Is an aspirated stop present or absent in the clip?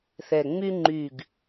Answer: absent